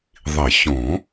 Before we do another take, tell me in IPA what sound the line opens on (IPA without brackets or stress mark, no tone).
ðˤ